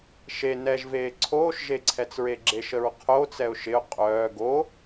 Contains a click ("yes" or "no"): yes